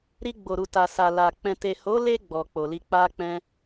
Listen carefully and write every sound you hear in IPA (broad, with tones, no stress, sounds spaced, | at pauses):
ɾ i˧ ɡ͡b o˨ ɾ u˨ t a˨ s a˨ l a˨ k͡p ɛ̃˨ t e˨ h o˨˦ l e˧ ɡ͡b ɔ˨ k͡p o˨ l i˧ k͡p a˦ k͡p ɛ̃˧